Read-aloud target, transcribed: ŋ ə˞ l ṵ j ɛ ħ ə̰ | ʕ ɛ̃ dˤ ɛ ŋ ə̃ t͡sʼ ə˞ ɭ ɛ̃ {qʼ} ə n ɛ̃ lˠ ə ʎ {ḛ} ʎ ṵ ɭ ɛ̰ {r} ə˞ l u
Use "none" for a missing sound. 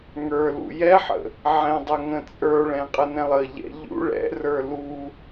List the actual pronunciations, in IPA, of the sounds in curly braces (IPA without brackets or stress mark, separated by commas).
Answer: qʼ, ɛ̰, r